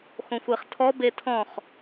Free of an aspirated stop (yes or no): no